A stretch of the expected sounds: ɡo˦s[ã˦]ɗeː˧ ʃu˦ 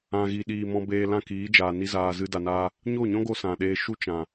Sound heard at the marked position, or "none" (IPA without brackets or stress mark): ã˨